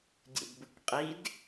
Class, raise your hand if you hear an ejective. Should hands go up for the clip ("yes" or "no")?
yes